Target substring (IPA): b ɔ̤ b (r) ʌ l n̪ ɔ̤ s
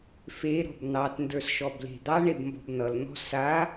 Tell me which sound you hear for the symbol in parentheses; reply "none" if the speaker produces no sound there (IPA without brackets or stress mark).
n̪